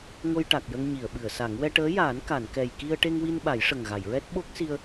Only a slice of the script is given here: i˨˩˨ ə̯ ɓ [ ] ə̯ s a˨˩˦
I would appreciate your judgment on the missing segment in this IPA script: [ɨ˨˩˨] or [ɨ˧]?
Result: ɨ˨˩˨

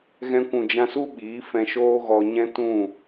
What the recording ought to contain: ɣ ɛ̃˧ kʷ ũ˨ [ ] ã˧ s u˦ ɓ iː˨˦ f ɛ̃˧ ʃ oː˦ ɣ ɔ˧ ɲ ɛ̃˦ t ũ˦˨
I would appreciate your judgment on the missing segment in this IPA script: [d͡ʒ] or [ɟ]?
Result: d͡ʒ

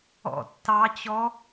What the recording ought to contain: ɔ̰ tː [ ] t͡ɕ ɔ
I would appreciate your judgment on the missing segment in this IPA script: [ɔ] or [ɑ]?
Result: ɑ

